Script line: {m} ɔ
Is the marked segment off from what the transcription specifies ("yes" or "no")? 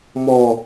no